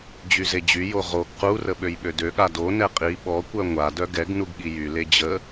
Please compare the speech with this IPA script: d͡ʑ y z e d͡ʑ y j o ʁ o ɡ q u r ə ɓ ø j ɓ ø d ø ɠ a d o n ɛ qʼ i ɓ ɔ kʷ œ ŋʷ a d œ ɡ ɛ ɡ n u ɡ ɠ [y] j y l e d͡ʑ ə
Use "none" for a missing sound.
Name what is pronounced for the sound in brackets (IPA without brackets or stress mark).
i